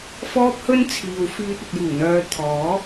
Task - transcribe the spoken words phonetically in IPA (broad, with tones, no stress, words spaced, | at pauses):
fɔː˥p̚hɵ˥nt͡sʰiː˨wfyː˧t̚ ɐ˨t̚juː˨˩n̪œː˨˧ t̪ʰɔː˨˥